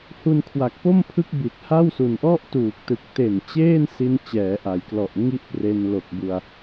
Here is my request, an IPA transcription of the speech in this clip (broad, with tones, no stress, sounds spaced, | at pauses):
h u˧ n kʰ w a˨˩ k̚ p o˥˩ m pʰ ɯ˦˥ k̚ b i˨˩ t̚ h a˥˩ w s u˨˩ n ʔ ɔ˥˩ ʔ t uː˨˩ k̚ t ɯ˨˩ k̚ t e˨˩ n t͡ɕ eː˥˩ n s i˧ n t͡ɕ ɛː˩˦ ʔ a˩˦ j k l ɔ˨˩ ʔ ŋ i˥˩ ʔ p r e˧ n l o˨˩ k̚ b u˧ a̯